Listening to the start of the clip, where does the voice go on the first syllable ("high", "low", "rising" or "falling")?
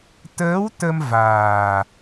rising